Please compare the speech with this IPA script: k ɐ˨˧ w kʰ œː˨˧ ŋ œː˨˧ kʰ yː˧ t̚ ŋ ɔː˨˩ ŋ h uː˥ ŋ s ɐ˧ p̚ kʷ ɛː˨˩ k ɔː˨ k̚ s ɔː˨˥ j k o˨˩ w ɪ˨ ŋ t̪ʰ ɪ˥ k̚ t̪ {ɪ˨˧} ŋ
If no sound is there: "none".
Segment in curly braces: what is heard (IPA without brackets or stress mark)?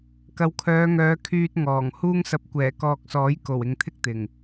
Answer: ɪ˨˩